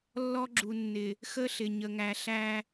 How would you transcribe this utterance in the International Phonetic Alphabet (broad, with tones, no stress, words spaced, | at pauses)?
lːɔ˦ɡ͡ǁu˨nːɪ˨ | xə˦ɬɪ˨ ɲə˨ŋæ˨ ɬæ˦